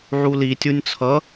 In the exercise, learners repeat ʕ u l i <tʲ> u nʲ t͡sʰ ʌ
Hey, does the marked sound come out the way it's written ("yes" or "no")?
yes